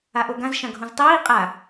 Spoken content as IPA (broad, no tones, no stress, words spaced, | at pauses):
aʔoɡãz ʃãɡʱũztˤiː qʼa